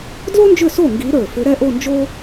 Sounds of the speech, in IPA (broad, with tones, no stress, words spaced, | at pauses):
dlo˥nd͡ʒʏ˥˩so˥˩ ŋɡi˧˥ɾə˞˧˩ fʏ˧˥ɾɛ˥ʔo˥˧nd͡ʒo˥